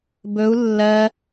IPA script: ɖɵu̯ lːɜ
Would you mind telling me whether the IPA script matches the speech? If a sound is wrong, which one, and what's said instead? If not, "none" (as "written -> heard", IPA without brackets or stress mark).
ɖ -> b